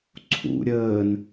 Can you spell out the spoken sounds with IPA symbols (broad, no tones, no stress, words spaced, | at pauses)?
ǀʰṵ ɾʲəːn